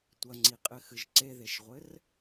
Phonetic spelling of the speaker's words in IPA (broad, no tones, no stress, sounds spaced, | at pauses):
tʷ ɐ ŋ͡ǀ i qʼ ɘ x ɨ ʒ ǀ e ð e ʃ ʁʷ ɘ r